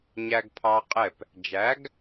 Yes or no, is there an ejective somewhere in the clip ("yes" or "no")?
yes